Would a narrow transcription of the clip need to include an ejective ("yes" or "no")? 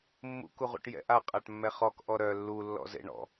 yes